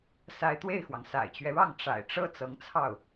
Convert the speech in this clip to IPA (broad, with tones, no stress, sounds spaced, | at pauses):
s a˧˥ ɪ̯ t̪ w e˥˩ ɪ̯ x w ɑ˩ ŋ s a̰˨˩ ɪ̯ t͡ɕ ɥ ɛ˦ ɻ ɑ˥˩ ŋ ʈ͡ʂ a̰˨˩ ɪ̯ ʈ͡ʂ ɤ˥ t͡s ɤ˧˥ ŋ t͡sʰ ɑ˥˩ ʊ̯